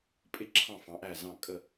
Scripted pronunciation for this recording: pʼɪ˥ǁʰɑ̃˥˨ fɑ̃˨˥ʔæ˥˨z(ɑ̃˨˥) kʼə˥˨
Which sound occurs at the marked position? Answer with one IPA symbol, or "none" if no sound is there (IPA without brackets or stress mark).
ɑ̃˥˨